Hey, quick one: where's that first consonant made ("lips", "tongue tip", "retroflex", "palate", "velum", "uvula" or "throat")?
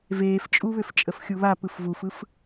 lips